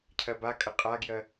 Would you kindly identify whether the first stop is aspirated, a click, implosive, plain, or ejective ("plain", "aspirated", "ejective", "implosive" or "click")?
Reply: aspirated